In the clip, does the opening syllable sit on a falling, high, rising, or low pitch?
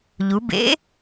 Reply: rising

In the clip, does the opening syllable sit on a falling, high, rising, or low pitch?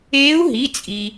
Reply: rising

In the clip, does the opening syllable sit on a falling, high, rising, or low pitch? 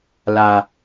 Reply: low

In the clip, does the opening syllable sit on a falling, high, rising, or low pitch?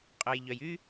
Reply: low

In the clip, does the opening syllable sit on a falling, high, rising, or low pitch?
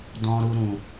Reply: high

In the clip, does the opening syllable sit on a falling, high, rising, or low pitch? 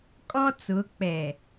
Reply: high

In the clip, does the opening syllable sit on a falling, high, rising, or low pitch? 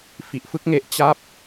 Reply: low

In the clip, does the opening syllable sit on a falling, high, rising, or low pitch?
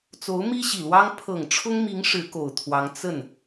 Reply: rising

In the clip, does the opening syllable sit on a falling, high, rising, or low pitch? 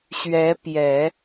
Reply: rising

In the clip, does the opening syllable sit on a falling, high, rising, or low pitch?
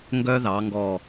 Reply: high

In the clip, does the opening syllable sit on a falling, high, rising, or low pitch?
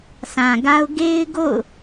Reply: low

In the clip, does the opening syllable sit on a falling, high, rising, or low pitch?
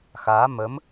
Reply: rising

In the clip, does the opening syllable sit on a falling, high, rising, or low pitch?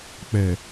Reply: low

